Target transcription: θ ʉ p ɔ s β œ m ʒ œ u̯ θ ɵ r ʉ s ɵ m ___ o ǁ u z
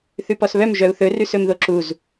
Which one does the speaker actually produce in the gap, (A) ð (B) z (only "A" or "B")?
A